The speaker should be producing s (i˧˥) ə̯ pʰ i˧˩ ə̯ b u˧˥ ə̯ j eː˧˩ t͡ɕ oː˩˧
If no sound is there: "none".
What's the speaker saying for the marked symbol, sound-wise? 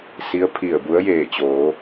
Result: i˧˥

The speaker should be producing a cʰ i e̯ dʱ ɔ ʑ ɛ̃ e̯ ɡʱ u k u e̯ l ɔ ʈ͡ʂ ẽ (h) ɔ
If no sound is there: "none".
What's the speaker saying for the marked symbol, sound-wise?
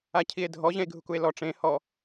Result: h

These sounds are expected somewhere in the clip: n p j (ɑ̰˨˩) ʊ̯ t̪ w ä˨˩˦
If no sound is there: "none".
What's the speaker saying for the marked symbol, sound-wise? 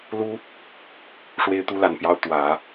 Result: ɑ˥˩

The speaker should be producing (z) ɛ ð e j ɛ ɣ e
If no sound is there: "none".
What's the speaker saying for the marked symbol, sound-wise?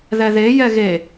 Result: ð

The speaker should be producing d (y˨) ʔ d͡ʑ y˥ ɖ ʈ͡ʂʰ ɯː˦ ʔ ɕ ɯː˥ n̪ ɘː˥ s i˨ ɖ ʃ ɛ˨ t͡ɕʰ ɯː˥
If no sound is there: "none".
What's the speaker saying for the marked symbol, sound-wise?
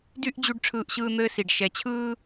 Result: y˥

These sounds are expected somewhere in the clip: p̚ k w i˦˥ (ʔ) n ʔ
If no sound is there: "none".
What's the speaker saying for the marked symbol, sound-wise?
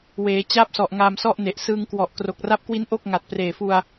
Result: none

